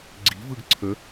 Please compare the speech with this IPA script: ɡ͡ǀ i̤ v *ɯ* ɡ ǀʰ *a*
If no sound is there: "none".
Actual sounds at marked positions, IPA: ɯ, ə

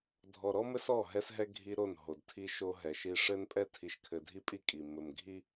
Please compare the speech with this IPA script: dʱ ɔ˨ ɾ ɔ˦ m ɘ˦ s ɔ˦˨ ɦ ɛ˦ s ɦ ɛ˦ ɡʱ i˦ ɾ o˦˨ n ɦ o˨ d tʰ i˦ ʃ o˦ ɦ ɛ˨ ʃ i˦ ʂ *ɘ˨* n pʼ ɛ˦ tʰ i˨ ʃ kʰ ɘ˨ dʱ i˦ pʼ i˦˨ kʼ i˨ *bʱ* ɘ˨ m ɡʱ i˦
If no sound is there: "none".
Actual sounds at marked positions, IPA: ɘ˦, m

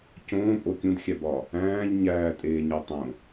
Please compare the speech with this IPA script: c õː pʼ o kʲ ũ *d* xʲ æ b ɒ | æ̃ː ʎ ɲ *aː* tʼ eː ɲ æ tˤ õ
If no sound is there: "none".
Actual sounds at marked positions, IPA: d, æː

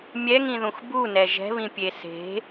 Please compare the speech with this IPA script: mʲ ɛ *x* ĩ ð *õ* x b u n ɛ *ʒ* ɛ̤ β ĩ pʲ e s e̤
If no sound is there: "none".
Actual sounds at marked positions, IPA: ŋ, ũ, ʒ

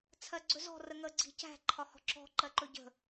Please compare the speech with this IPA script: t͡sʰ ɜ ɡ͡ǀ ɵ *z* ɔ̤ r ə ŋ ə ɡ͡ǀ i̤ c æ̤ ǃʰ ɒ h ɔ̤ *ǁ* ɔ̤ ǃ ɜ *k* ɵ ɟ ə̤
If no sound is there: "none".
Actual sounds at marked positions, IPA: z, ǁ, ǃ

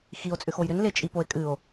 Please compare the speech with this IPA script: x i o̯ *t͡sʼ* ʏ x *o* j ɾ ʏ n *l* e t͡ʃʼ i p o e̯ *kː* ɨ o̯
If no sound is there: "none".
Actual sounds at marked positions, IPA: t͡sʼ, o, l, kʼ

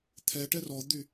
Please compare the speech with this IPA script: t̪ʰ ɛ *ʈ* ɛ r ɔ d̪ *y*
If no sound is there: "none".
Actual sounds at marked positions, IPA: ʈ, y

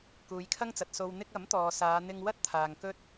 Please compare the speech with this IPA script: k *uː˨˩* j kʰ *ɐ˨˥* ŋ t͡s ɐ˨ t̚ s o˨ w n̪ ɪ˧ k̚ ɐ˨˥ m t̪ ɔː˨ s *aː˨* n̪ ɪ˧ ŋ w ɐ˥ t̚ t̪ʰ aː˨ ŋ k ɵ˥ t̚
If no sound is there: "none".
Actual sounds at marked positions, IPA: uː˨˧, ɐ˥, aː˨˧

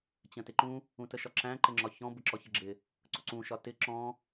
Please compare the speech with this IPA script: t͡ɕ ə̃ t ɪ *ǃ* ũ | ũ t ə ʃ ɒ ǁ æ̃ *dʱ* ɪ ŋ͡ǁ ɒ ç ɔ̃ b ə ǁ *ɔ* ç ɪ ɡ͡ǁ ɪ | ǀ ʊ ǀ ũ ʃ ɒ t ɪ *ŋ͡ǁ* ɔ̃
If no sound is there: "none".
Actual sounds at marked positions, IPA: ǃ, ǃ, ɔ, ǁ

